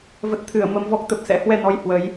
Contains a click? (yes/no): no